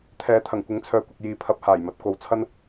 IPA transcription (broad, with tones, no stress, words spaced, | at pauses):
t̪ʰɛː˨˥ t̪ʰɐ˨˩ŋkʷɪ˨˥ŋt͡sʰœː˨kʷɐ˨k̚ jiː˨˧pʰɐ˨˥p̚ haː˨˩jmɐ˨˥t̚ko˨˧w t͡sʰɐ˥n